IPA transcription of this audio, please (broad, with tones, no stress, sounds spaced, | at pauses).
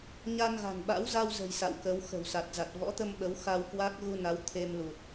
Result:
ɲ a˧ n ɣ a̤˨˩ n ɓ a̰˧˥ w z a˧ w z ə̤˨˩ j s a̰˧˨ w k ə˨˦ w x ə̤˨˩ w s a˨˩ t̚ z a˨˩ t̚ v ɔ̰˧˥ t̪ ə˧ m ɓ ə˨˦ w x a˧ w k w a˦˥ k̚ ɣ u˧ n a˨˦ w t̪ʰ e˧ m l u˨˩ t̚